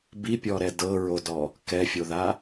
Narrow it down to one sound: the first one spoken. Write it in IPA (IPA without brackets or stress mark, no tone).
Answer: b